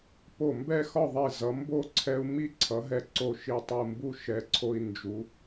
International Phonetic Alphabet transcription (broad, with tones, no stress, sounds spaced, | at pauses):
p o˧˩ m b ɛ˥˧ x ɒ˥˧ ðˤ i˧˩ z ʌ˩˧ m b o˥˧ ǀʰ ɛ˧ u̯ m i˥˧ ǀʰ ʌ˩˧ ɦ ɛ˧ ǀ o˧˩ ʃ i˧ tˤ u˧˩ m b u˥˧ ʃ ɛ˩˧ ǀʰ o˧ i̯ n d͡ʒ u˩˧